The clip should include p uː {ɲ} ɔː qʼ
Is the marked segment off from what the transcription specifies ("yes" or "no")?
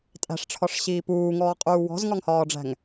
yes